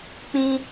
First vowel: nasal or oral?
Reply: nasal